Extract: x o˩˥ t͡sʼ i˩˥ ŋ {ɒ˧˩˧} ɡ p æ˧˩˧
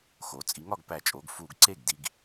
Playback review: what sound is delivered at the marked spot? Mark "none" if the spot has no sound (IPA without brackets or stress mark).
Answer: ɒ˥˩